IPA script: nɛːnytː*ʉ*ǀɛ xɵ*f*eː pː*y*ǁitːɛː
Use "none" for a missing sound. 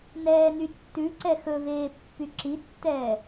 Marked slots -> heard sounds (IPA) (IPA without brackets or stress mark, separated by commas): ʉ, v, y